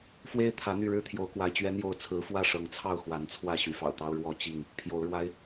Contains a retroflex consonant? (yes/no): yes